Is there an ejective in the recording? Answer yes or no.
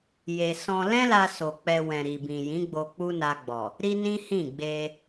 no